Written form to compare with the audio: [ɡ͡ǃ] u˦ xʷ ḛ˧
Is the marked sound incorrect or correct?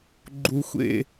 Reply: correct